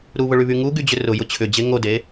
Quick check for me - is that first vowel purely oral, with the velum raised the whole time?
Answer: yes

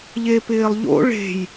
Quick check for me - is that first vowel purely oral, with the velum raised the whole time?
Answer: yes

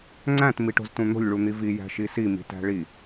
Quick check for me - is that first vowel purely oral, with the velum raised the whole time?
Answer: no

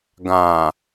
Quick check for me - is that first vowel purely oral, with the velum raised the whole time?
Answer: no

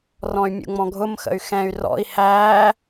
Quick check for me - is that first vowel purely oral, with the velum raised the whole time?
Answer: no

